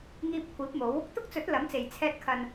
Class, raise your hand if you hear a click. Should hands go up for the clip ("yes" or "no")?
no